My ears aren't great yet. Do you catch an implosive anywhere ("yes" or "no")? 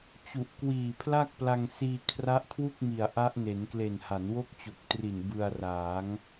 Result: no